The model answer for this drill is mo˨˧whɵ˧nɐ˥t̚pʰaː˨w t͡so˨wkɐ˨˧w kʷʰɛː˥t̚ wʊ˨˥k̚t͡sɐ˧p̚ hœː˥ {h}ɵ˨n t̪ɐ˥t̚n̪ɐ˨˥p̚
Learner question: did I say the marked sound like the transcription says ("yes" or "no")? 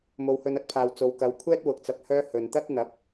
yes